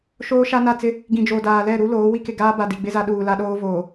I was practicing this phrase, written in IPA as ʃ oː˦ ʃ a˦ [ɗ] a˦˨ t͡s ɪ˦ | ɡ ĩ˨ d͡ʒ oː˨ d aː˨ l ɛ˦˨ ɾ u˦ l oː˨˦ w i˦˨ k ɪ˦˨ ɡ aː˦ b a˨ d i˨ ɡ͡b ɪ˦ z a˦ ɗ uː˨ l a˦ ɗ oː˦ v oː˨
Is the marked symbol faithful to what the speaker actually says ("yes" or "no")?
no